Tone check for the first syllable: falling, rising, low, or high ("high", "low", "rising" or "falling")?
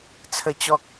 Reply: low